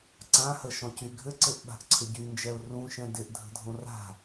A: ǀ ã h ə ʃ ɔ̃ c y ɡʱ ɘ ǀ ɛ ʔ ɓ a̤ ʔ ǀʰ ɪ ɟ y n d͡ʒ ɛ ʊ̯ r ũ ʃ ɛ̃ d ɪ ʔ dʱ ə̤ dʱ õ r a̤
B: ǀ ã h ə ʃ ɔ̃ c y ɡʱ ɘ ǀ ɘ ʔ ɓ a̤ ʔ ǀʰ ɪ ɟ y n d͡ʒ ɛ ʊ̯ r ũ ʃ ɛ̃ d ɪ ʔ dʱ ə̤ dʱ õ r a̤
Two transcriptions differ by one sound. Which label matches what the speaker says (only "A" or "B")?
B